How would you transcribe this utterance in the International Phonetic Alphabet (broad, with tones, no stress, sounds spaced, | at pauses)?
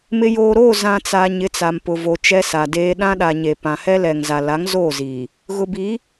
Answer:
m ɪ˨ j oː˨ ɾ oː˦˨ z ã˨ t͡s a˨ ɲ ɪ˨˦ t͡s a˨ m p ʊ˨ v o˨ t͡ʃ ɛ˦ s a˨ d eː˦ ɗ ã˦ ɗ a˨ ɲ e˨ p ã˨ h ɛ˦ l ɛ˨ ŋ z a˨ l a˨˦ ŋ z oː˦˨ z iː˨ | ɣ ʊ˨ b i˨˦